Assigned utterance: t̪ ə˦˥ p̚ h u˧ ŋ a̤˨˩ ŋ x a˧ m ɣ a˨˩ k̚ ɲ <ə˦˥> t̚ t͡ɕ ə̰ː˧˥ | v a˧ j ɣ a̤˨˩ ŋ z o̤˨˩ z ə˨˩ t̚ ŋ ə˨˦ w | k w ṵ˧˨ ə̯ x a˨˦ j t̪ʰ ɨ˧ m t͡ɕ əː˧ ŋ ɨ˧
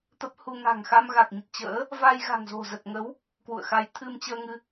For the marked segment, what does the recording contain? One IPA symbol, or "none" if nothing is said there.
ə˨˩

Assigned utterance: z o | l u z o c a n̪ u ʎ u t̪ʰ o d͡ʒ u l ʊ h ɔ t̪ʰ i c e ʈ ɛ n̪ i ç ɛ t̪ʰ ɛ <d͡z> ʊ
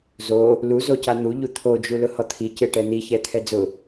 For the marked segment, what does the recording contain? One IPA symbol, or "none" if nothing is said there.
d͡z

